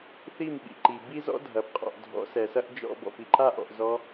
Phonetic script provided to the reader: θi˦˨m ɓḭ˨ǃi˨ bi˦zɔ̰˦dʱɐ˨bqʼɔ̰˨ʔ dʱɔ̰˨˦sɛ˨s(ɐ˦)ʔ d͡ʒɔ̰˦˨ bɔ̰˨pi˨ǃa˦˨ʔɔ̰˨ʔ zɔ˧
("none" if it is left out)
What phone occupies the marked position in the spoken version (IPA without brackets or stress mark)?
ɐ˦